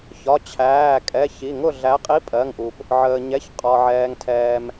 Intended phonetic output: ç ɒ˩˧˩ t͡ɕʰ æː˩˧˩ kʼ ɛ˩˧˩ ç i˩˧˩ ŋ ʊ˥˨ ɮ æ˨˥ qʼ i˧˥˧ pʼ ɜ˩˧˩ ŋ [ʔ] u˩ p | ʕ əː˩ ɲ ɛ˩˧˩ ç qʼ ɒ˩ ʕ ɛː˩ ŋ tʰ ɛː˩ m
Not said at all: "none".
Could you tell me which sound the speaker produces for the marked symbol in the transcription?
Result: ʔ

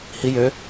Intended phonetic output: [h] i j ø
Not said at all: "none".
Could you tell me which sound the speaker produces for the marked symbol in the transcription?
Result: h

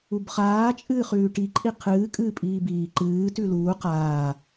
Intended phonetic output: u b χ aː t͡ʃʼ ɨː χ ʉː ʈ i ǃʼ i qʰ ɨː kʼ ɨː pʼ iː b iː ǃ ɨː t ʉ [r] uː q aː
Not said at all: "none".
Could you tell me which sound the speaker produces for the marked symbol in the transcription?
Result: l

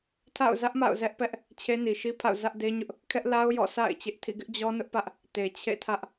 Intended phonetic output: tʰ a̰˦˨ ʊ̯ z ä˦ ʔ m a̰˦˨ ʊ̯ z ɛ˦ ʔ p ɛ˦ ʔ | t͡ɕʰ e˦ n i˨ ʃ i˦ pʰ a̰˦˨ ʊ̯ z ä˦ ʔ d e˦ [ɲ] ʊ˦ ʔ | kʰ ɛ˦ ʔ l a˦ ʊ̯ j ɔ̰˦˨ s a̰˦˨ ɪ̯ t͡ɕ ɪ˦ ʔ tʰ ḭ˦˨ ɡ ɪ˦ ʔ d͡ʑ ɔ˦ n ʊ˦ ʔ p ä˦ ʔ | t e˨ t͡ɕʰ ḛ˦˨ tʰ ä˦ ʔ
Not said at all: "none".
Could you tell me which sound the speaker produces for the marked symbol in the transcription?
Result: ɲ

